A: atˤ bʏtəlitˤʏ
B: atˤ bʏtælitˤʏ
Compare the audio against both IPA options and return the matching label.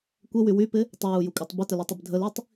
A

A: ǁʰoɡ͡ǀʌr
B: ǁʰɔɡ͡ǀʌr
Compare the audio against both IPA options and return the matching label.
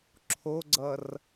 A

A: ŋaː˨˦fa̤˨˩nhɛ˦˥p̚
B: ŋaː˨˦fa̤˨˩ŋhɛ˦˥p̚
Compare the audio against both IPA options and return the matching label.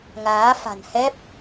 A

